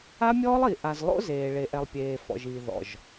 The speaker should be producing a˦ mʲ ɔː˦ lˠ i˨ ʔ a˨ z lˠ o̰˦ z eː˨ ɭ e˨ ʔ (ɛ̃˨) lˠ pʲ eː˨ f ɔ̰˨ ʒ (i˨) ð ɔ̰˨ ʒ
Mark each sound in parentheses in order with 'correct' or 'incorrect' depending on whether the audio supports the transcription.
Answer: incorrect: ɛ˨, incorrect: iː˨

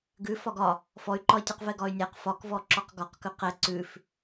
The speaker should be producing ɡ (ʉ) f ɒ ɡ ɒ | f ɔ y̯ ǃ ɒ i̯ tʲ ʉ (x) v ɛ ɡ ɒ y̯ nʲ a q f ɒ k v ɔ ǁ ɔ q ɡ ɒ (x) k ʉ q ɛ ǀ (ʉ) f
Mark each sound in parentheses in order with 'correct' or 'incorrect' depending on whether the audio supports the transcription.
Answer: correct, incorrect: q, incorrect: q, correct

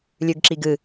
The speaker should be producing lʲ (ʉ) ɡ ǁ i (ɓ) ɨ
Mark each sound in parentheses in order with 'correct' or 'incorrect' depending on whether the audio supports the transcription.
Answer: correct, incorrect: ɡ

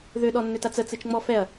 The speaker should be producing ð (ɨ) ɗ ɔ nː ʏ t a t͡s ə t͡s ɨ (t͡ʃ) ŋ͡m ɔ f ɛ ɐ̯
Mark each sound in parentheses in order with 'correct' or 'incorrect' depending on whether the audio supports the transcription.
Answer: incorrect: ʏ, correct

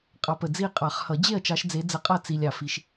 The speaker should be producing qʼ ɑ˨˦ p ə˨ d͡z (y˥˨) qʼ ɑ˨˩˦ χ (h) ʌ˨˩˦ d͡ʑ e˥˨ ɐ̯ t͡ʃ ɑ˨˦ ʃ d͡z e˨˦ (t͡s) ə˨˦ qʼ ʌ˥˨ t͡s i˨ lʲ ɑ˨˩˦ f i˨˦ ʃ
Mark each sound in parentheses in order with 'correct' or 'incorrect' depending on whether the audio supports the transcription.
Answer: incorrect: i˥˨, correct, incorrect: d͡z

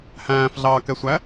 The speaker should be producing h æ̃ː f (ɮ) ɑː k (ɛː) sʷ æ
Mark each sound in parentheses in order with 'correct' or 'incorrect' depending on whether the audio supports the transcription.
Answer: correct, incorrect: ɛ

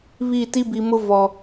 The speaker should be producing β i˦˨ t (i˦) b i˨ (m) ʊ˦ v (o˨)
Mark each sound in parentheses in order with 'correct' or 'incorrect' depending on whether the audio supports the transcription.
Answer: correct, correct, incorrect: ɔ˨

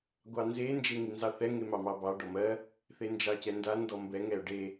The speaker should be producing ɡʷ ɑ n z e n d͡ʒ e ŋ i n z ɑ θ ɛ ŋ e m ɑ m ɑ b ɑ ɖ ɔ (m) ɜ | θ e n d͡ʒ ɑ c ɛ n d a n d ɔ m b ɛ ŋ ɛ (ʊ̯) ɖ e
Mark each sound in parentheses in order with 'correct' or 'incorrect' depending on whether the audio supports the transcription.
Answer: correct, correct

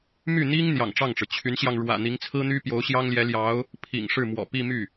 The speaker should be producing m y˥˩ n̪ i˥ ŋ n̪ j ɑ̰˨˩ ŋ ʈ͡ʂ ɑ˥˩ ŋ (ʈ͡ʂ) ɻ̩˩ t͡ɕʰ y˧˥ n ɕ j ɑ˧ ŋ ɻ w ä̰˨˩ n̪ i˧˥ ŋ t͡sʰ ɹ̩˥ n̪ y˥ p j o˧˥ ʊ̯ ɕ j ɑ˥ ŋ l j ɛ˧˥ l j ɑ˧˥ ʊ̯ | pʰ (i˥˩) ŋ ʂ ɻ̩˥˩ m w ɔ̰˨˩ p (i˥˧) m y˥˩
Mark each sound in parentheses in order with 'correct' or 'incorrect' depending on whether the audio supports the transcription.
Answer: correct, incorrect: ḭ˨˩, correct

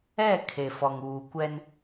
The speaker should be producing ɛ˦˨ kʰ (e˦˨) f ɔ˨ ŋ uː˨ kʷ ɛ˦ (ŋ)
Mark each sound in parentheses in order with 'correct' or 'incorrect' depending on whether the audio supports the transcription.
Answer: incorrect: e˨, incorrect: n

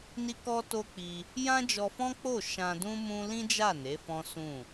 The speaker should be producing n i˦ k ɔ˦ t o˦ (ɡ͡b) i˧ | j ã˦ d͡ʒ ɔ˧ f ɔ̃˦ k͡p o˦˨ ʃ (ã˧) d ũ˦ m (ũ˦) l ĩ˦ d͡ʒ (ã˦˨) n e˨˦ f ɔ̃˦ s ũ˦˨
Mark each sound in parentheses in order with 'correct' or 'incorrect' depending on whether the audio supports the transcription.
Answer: incorrect: k͡p, correct, correct, incorrect: a˦˨

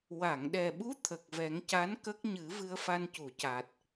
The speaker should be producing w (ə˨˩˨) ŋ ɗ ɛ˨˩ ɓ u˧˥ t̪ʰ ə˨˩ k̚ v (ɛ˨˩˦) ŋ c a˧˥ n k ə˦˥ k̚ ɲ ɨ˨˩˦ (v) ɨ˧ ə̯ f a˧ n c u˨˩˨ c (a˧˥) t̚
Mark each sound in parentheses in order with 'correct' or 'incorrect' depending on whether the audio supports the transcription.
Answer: incorrect: a˨˩˨, correct, correct, incorrect: a˨˩

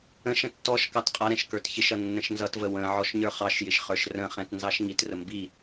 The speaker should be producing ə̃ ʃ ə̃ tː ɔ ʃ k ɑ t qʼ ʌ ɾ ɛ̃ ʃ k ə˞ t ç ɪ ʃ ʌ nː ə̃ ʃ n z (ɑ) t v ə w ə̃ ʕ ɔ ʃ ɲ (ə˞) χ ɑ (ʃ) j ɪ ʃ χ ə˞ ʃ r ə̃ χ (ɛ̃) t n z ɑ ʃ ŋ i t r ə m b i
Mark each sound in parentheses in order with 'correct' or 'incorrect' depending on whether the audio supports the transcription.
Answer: incorrect: ʌ, correct, correct, correct

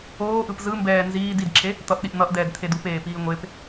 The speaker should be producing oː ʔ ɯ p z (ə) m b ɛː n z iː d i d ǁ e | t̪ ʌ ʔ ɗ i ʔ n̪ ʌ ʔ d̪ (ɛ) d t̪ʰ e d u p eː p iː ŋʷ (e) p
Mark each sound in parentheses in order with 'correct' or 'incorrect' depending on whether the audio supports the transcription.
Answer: incorrect: ɯ, incorrect: ɛː, correct

